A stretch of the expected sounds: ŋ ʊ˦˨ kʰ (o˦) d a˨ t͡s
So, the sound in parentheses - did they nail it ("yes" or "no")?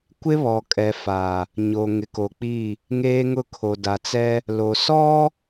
no